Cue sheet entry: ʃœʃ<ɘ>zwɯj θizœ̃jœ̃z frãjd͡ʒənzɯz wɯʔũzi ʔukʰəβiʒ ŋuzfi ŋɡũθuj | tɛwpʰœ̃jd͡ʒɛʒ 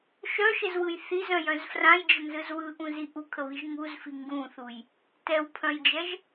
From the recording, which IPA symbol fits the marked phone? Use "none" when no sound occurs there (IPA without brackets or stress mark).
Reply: ɘ